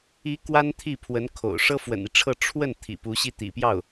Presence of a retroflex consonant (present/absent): present